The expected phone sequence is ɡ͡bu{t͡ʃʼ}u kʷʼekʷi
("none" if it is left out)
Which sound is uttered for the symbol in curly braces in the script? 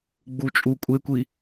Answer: t͡ʃʼ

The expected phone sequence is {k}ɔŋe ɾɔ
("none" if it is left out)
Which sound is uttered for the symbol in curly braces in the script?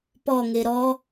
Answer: p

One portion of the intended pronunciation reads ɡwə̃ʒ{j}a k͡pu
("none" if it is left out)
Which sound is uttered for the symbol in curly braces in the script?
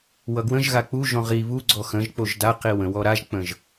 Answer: ɣ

